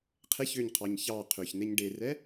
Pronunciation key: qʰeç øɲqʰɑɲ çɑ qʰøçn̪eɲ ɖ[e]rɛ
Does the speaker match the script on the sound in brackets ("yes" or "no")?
yes